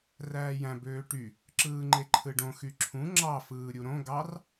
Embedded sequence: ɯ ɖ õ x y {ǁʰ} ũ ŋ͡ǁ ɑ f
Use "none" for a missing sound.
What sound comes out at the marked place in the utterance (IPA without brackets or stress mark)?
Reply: ǁʰ